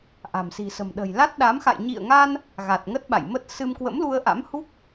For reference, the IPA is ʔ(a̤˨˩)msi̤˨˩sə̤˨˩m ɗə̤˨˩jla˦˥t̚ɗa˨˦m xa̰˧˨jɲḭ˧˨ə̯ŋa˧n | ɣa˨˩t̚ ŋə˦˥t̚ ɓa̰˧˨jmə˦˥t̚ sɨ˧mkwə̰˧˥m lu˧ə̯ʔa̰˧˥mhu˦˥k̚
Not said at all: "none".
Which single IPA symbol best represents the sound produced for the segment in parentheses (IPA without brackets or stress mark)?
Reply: a̤˨˩